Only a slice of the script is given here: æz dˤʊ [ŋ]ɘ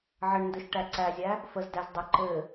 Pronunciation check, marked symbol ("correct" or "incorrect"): incorrect